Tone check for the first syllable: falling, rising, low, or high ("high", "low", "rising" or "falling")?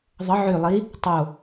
rising